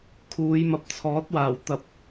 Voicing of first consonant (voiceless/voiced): voiceless